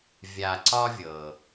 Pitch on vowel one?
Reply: low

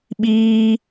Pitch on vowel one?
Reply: high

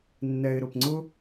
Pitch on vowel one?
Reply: low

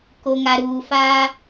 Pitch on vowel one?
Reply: low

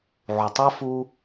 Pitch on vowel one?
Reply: low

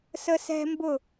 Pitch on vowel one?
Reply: high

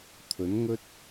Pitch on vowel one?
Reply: rising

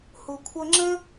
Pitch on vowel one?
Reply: low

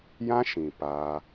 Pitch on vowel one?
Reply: high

